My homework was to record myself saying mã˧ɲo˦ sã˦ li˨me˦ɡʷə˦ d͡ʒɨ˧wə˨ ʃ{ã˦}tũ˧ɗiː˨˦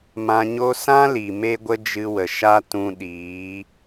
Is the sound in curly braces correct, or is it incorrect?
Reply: incorrect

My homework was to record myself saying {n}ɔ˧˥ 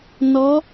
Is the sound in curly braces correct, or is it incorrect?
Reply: correct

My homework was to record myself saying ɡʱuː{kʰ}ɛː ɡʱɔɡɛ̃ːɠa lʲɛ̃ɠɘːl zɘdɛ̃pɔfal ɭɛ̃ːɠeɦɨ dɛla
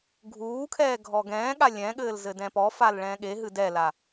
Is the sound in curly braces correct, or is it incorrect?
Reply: correct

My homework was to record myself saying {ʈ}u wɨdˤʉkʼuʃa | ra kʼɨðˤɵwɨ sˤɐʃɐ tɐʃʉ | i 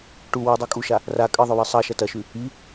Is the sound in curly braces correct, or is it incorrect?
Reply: correct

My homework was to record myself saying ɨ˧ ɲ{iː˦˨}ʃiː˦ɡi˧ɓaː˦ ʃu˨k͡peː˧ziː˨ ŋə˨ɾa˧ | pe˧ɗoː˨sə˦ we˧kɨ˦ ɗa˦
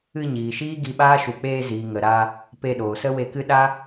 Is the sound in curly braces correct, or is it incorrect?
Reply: incorrect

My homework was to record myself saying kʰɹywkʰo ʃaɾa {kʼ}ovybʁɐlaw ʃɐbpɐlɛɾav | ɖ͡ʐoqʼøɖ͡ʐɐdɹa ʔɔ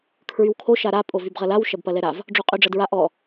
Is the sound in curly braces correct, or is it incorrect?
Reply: incorrect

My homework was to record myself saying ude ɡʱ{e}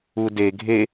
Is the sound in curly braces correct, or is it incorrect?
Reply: correct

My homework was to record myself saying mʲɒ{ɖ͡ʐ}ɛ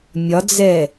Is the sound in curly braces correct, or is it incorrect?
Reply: incorrect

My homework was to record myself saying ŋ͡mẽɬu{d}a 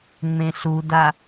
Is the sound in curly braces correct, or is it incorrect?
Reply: correct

